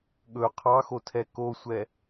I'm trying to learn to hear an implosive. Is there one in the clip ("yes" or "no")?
yes